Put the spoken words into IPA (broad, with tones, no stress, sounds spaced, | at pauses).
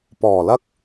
p ɔː˨˩ l ɐ˧ k̚